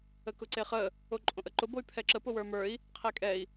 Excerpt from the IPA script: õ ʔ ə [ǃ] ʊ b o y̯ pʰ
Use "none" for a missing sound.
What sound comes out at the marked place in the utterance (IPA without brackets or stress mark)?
ǃ